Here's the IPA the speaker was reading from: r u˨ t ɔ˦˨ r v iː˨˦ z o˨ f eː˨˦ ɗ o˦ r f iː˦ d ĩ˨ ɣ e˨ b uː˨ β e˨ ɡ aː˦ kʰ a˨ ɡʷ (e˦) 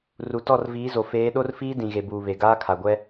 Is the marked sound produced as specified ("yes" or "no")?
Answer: no